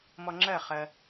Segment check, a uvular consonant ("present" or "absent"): present